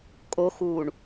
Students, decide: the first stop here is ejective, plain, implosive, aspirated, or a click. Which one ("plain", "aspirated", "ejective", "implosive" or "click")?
ejective